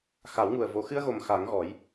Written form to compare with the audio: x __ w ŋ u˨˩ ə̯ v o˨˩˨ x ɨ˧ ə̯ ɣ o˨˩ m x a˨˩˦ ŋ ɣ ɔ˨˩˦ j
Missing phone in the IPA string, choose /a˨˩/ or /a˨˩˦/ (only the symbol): a˨˩˦